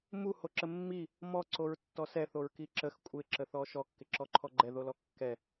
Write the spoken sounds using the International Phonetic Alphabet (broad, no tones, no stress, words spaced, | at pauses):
mu hoǁəmːi | mɔ ǀoɹtːɔsɛ θoɹkiǁəx kʷʼɪ ǁəθɔʃɔ kːɪǁɔǃʰɔɡ͡ǃɛ ðolɔkːɛ